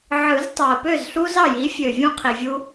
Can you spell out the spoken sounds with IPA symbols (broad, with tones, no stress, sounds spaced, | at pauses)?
ʕ ɯ˨˩˦ z tˤ ɑ˨˩ ə̯ p ø˥˩ z ɬ u˦ z ɑ˥˩ j i˩˥ fʲ ø˨˩ vʲ ũ˥˩ qʰ i˨˩ vʲ u˦